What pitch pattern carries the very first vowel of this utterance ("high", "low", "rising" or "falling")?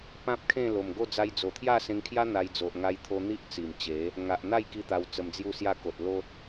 high